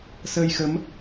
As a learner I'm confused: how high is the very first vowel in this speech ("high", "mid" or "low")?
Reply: mid